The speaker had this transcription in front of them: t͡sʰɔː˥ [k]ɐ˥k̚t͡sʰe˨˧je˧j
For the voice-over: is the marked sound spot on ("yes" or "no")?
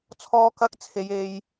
yes